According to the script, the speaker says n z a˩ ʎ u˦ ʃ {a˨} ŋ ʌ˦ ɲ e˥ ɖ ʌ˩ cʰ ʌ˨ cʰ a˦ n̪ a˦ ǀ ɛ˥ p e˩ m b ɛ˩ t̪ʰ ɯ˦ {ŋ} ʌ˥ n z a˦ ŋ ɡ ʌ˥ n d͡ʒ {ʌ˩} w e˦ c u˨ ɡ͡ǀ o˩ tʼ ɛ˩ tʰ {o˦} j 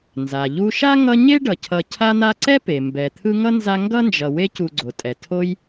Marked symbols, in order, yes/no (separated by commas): no, yes, no, yes